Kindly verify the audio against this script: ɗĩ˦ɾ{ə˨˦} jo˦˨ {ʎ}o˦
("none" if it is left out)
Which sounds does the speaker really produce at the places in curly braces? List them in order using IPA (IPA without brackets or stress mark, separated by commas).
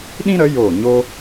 ə˨˦, ɲ